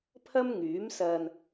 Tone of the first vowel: high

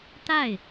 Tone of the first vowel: falling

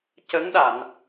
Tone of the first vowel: rising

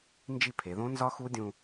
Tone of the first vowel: falling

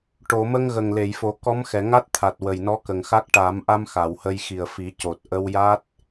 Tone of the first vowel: low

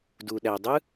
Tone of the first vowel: low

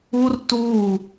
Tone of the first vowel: high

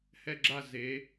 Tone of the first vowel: falling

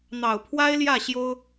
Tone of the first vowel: low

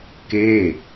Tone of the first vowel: falling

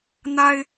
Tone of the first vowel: high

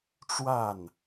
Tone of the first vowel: falling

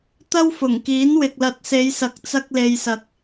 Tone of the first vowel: high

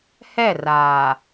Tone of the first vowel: falling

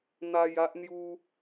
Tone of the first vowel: high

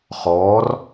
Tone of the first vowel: rising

